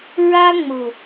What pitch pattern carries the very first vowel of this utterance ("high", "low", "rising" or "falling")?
high